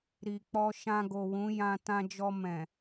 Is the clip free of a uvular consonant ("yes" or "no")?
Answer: yes